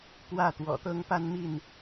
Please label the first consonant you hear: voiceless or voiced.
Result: voiceless